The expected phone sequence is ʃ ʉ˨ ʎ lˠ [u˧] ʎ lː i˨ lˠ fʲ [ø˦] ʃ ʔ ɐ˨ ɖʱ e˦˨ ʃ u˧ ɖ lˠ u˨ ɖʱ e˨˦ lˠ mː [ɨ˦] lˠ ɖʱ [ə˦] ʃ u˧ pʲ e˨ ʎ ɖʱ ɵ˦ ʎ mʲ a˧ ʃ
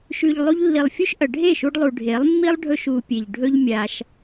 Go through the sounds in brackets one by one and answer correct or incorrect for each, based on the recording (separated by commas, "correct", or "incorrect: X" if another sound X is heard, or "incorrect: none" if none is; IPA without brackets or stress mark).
correct, incorrect: u˦, incorrect: i˦, incorrect: ɵ˦